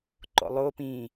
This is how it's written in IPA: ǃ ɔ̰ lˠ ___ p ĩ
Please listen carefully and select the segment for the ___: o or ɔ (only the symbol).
o